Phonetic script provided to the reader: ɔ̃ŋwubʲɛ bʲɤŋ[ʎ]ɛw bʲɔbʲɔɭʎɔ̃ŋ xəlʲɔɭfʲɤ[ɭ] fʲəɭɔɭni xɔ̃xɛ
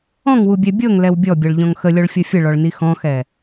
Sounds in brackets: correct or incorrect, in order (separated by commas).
incorrect, incorrect